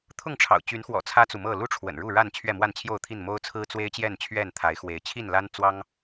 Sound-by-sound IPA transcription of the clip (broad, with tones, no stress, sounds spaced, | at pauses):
t̪ʰ ʊ˥˨ ŋ ʈ͡ʂʰ ɑ̰˨˩ ʊ̯ t͡ɕ y˨˦ n x w ɔ̰˨˩ t͡sʰ ä˦ t͡s u˨ m ɤ˥˨ l u˦ ʈ͡ʂʰ w ə̰˨˩ n ɻ u˥˨ ɻ a˥˨ n t͡ɕʰ ɥ ɛ˥˨ m w a˥˨ n t͡ɕʰ j o˥˨ ʊ̯ t̪ʰ i˥˨ n m o˦ ʊ̯ t͡sʰ ɹ̩˦ t͡s w e˦ ɪ̯ t͡ɕ j ɛ˥˨ n t͡ɕʰ ɥ ɛ˥˨ n t̪ʰ a˨˦ ɪ̯ x w e˨˦ ɪ̯ t͡ɕʰ i˥˨ n l a˦ n t͡s w ɑ˦ ŋ